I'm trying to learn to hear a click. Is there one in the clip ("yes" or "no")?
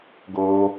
no